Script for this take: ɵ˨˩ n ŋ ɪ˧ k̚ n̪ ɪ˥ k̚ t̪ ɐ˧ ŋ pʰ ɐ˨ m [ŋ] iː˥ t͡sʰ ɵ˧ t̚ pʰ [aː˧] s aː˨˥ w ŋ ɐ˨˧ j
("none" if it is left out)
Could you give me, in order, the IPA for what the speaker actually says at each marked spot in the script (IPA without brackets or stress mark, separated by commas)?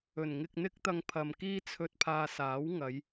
k, aː˧